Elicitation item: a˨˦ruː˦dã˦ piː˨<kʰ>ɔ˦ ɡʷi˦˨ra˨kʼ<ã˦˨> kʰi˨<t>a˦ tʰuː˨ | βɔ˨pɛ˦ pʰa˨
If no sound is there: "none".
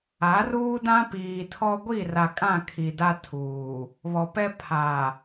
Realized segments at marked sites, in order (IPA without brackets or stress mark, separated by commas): tʰ, ã˦˨, d